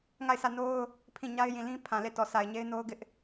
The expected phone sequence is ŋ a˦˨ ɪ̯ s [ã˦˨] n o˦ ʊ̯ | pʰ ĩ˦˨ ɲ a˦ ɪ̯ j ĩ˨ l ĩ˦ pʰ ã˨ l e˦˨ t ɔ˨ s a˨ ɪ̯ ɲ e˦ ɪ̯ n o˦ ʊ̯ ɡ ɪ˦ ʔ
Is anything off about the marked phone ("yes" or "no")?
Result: yes